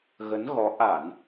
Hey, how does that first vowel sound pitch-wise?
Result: rising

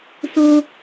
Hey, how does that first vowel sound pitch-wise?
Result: high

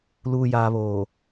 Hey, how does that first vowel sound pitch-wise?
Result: low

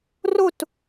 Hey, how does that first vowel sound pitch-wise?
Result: falling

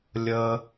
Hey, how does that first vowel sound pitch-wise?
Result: low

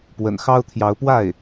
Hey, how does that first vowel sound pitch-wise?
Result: low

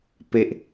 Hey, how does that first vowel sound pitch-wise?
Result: low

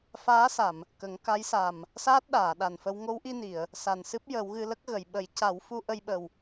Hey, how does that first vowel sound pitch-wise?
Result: rising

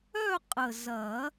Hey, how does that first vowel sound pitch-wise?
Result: falling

